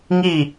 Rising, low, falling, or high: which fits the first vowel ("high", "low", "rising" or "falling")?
falling